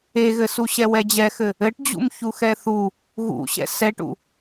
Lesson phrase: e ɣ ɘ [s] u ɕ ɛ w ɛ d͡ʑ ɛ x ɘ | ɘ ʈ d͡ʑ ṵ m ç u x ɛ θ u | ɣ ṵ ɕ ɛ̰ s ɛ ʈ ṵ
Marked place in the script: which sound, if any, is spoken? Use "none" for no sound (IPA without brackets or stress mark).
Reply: s